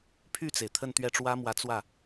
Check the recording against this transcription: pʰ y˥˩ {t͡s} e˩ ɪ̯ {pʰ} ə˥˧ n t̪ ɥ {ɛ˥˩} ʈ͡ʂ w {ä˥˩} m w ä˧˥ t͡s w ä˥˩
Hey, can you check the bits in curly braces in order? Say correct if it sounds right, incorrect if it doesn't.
correct, incorrect, correct, incorrect

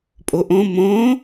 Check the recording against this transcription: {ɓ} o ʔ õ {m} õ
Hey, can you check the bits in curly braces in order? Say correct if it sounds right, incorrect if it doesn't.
incorrect, correct

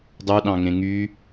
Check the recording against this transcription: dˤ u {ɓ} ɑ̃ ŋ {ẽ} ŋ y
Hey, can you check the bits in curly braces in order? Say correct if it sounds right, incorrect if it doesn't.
incorrect, correct

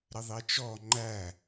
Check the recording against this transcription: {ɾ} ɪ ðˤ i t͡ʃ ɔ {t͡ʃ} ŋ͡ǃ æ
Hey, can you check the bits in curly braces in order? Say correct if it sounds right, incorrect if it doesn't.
correct, incorrect

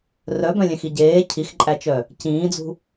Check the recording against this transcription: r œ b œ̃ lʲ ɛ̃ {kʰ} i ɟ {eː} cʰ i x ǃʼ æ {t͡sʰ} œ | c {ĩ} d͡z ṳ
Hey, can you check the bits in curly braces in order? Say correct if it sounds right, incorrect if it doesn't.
incorrect, correct, incorrect, incorrect

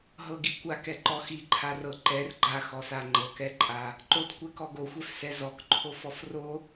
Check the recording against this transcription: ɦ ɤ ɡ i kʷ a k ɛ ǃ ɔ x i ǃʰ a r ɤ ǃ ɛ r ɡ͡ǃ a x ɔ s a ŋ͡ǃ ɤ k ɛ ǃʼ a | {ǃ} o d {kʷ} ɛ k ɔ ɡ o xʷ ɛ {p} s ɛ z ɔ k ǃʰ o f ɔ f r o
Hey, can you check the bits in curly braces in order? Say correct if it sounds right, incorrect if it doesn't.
correct, correct, incorrect

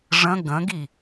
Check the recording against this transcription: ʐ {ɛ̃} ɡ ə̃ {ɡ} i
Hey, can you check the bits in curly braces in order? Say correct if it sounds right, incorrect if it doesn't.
incorrect, correct

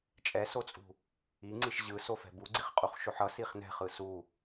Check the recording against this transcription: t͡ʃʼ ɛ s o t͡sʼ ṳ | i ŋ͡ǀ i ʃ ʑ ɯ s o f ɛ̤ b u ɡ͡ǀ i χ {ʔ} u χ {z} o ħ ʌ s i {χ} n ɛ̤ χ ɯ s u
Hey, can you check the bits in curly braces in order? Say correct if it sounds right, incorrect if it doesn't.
incorrect, incorrect, correct

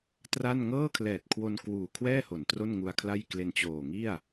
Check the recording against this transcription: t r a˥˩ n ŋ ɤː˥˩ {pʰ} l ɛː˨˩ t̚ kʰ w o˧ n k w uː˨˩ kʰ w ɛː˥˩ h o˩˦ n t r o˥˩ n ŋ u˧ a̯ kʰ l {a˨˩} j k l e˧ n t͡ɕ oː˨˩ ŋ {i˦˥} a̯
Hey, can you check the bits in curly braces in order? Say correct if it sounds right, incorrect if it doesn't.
incorrect, incorrect, incorrect

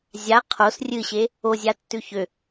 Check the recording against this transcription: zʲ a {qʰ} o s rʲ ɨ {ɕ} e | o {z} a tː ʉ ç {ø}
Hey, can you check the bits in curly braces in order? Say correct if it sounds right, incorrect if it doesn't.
correct, correct, incorrect, correct

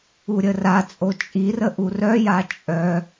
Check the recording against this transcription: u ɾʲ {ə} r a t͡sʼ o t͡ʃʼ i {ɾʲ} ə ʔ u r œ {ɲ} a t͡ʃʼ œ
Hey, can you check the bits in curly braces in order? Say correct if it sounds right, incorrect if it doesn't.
correct, incorrect, incorrect

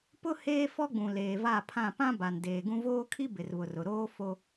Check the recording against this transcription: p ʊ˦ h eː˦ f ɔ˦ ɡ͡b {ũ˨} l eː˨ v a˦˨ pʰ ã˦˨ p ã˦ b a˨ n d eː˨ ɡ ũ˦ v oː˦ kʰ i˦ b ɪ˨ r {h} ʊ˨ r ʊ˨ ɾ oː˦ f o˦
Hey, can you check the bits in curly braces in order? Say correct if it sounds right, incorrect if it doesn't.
correct, incorrect

